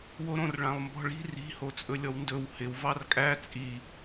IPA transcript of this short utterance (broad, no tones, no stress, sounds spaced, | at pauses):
w o ɾ õ r ɭ ã lˠ m b ɔ̤ ɭ i̤ r i̤ h o t͡sʼ ɵ lʲ ɔ w n d ɵ w h ɪ w v ɑ r kʼ æ t͡sʼ i